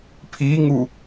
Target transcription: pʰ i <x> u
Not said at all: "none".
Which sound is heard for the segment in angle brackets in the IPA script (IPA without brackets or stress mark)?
ŋ